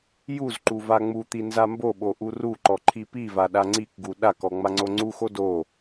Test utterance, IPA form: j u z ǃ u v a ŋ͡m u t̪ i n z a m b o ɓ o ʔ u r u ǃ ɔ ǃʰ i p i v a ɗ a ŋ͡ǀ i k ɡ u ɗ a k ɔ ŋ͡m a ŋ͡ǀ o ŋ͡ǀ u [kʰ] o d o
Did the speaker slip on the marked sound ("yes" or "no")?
yes